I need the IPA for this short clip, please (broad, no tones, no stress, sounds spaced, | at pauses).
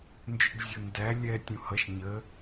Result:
n d͡ʒ ʏ ɖ zʲ ʊ n d æ lʲ ɛ tʲ ũ h ʌ ʃ ɲ ə